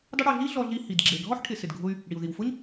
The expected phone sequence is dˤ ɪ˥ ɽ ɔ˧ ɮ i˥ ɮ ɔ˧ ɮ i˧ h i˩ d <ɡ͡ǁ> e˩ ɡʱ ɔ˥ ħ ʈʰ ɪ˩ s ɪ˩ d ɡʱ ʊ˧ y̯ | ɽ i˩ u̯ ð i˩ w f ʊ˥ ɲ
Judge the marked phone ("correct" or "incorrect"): correct